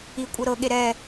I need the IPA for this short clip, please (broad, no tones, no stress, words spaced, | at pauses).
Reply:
i kʷʼɤɾɤɠe ɾɛ